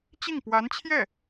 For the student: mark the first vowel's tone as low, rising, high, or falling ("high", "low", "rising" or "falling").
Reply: falling